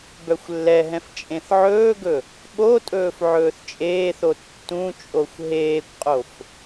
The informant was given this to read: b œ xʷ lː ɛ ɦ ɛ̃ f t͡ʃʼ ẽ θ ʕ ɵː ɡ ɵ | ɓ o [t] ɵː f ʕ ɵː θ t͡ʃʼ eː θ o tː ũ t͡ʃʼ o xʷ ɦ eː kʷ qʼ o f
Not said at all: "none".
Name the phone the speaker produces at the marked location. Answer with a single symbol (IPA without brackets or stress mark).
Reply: tʼ